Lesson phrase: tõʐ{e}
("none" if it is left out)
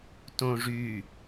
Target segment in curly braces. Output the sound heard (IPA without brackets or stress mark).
y